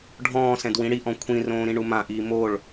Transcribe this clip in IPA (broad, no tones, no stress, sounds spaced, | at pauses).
ɖʱ ɔ̃ː s ɛ̃ d w ĩ ɽ i ʔ ɔ̃ kʷʰ ĩ r õː ɾ ĩ ɳ u m ã ʔ iː m o ɭ